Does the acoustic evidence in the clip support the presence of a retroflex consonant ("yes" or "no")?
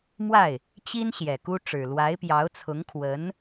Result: yes